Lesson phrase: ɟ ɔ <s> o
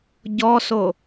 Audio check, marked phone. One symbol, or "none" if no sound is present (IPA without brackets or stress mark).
s